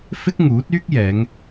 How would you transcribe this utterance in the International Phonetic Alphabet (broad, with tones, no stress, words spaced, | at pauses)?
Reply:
fɪ˥k̚ŋuː˨˥t̚yː˥k̚jɛː˨˧ŋ